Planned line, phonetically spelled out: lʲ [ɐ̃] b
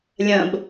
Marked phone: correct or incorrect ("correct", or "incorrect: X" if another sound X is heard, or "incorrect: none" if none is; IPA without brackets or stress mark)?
correct